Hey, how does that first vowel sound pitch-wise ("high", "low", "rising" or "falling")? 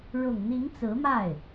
low